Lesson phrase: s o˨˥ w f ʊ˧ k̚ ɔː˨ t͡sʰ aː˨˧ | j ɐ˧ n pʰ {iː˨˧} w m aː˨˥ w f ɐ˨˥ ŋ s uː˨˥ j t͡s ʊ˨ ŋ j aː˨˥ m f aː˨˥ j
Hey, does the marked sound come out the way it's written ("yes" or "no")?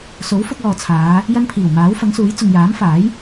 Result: no